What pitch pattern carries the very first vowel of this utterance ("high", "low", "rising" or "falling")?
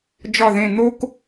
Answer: falling